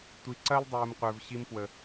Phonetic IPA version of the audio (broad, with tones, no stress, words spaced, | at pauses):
tʷi˨ǀɐ˦l dˤuː˨m qʷə˞˨vɕi˧mpwə˨